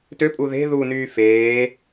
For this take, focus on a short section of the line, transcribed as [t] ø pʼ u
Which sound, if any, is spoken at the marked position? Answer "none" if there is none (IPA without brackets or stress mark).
t